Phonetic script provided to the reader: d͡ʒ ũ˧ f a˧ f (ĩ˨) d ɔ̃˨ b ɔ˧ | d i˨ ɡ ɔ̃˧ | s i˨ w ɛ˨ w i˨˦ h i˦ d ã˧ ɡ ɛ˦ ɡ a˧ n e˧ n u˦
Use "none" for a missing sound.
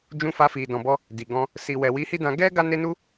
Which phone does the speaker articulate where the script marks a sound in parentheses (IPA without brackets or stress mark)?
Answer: i˨